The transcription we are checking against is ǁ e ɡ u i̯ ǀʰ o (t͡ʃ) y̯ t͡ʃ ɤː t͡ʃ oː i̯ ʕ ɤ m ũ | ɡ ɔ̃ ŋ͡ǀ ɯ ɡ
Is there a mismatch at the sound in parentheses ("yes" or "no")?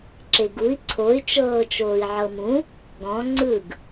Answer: yes